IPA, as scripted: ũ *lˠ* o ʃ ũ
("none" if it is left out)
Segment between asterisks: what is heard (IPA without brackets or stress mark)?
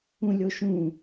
lʲ